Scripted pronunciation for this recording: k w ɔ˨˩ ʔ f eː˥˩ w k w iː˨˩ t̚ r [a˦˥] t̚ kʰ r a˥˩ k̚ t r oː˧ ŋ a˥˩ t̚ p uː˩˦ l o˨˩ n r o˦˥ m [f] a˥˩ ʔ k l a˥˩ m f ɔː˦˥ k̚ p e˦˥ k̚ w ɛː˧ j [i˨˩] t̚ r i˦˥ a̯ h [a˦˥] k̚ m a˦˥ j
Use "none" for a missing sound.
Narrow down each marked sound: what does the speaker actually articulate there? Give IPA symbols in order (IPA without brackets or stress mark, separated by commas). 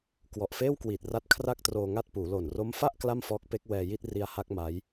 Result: a˦˥, f, i˥˩, a˦˥